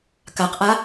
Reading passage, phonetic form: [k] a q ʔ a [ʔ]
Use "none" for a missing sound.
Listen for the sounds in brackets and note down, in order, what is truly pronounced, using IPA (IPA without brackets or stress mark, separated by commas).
k, none